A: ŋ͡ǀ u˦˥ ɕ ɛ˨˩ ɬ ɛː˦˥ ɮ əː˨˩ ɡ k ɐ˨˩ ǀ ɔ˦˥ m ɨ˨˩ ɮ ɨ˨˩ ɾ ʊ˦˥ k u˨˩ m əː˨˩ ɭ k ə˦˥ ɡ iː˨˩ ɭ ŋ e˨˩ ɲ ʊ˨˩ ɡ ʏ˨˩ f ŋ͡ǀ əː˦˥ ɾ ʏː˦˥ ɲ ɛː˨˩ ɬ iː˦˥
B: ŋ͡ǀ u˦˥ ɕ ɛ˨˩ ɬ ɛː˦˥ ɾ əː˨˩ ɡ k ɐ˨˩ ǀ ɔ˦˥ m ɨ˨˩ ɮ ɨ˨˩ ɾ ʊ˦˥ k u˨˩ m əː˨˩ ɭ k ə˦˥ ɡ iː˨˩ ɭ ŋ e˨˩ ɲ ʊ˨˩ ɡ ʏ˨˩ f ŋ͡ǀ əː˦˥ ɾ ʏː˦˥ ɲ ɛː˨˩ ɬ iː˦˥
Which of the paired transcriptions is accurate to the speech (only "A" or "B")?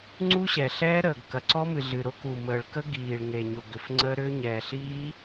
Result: B